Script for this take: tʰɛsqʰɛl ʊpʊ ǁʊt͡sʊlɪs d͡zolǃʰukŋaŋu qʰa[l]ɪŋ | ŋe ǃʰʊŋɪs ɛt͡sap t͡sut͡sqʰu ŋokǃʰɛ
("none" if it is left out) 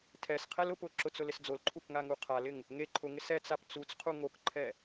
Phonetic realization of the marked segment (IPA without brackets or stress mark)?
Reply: l